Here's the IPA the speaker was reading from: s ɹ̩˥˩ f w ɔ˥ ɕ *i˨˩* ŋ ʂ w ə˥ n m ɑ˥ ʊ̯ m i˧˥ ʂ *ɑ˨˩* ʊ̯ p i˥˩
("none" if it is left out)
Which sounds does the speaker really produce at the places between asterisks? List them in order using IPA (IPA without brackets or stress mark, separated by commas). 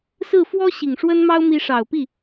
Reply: i˨˩, ɑ˨˩